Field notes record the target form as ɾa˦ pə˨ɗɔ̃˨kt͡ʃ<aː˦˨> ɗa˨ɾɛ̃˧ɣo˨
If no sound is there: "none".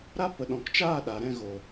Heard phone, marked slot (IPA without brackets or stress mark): aː˦˨